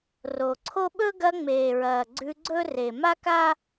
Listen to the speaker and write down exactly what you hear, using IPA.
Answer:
ro˨ǀʰo˥ ɓɵ˥ɡɐ˦ ŋ͡meː˨ɹɐː˨ ɡ͡ǀʉ˦ɡ͡ǀɵ˥ re˨ma˥ka˥

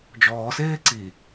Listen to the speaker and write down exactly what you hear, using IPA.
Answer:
d͡ʒɔːseː ǀi

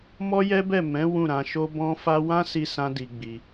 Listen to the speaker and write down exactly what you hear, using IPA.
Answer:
mɔ˦jɛ˦bɛ˦˨ mɛ̃˨˦ wũ˦˨ɾã˧ʃo˦ bɔ̃˦fa˦ wã˦si˧ sã˦di˧ɡ͡bi˧

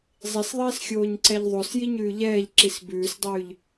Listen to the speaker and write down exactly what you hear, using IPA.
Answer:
zˤisðˤiːsxʲoːɲǀɛʎ ðˤosjiɲʉː ʎɛːʎǁis bʉːsdˤʉːʎ

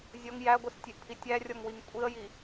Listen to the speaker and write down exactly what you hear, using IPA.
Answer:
zʲɔŋ jæɡʷistʲeʔpʰi tʲærʲɔŋwiŋ kʷʼiə̯ji

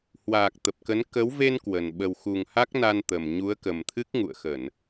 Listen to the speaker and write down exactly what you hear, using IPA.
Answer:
hwaː˨˩k̚ t̪ə˨˩p̚kə˨˦n kə˨˦w ve˧n kwə˨˩n ɓə˨˩wxu˨˩ŋ ha˦˥k̚na˧nt̪ə˨˩m ɲu˨˦ə̯kə˨˩mt̪ʰɨ˦˥k̚ ŋṵ˧˨ə̯xə˧˩˨n

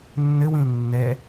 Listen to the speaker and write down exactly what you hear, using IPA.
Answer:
nːɘwĩl nːɛ

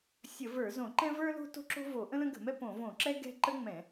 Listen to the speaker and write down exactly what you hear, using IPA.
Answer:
sʲə˧˩˧və˞˧˩˧zõ˧˩˧ ǃɛ̃˥və˞˥lo̤˥ to̤˥ǁo̤˥vo˧˩˧ ʔə̃˥lə̃˥ɡə̤˧˩˧mɛ˥ põ˧˩˧võ˧˩˧ǁɛ˥ ɡɛ̤˥ ǃə˥ŋ͡mɛ̃˧˩˧

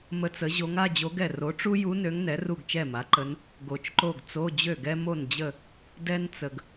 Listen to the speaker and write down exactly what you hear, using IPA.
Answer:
mə˧˥t͡sə˩˥ʑo˧˥ŋ a˧˥˧d͡ʑo˧˥ɡɛ˥˩ ro˩˥ʈ͡ʂu˥ju˧˥ nø˧˥ŋnɛ˩˥ ru˥˩ɡt͡ʃɛ˥˩ma˩˥ǃə˧˥n | ɡo˨t͡ʃǃo˥˩ɡ t͡so˧˥˧d͡ʑø˥˩ɡɛ˥ mo˥˩nd͡ʑə˥˩ | dɛ˥n t͡sə˨ɡ

